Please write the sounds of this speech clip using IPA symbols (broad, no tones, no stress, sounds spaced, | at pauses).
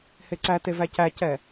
h e ǀ æ t e v æ c æ c ɛ